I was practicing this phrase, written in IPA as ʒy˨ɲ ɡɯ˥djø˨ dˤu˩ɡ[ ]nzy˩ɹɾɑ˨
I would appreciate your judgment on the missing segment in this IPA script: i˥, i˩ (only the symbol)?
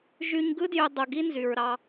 i˥